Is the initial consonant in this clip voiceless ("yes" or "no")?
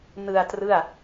no